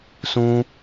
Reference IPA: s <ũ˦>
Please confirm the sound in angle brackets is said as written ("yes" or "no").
yes